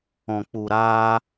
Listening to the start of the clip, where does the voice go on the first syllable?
low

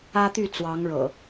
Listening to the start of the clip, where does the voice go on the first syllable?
high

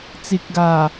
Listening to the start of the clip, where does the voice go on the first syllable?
low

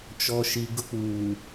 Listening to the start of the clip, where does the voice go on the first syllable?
low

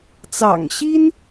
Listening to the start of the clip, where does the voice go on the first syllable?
low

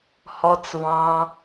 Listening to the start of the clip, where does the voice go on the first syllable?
low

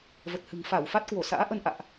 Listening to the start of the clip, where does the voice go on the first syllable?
low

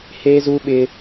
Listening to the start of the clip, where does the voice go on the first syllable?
high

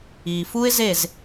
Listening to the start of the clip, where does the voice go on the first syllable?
low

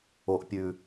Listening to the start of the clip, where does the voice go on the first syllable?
low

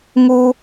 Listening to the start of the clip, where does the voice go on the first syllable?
high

